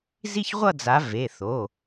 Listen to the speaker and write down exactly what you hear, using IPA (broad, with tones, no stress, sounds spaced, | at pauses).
z i˥˧ ç ʁʷ ʌ˥˧ d͡z a˨˦ v e˩˧˩ θ o˩˧˩